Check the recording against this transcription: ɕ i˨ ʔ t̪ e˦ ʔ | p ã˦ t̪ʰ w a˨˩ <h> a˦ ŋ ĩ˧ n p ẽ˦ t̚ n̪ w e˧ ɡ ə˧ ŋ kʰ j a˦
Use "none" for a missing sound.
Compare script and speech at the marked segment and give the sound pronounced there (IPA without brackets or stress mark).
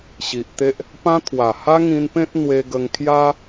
h